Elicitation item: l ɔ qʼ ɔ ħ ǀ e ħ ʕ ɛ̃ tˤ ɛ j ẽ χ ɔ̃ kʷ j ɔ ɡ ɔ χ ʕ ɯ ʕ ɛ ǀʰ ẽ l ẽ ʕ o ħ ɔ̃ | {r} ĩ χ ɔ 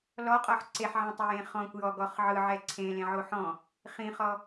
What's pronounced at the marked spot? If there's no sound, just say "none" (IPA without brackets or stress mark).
χ